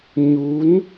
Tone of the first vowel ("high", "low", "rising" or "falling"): rising